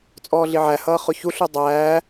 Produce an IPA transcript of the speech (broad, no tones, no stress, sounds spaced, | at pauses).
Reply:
t͡sʼ ɔː ɮ i ʕ æ h ʌː χ ʊ ç u ɬ u dˤ æː